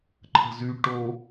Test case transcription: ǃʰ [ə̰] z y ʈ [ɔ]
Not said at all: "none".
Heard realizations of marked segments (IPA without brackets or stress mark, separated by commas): ə̤, o